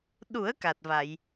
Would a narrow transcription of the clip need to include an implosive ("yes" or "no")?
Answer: yes